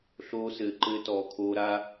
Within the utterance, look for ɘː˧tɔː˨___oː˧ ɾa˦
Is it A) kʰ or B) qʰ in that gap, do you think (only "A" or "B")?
A